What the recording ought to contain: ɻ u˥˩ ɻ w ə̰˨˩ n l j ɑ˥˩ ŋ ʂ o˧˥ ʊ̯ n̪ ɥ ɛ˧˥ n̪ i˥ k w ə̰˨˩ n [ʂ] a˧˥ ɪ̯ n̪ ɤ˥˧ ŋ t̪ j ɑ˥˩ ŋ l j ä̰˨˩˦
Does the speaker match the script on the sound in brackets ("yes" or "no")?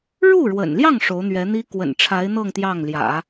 no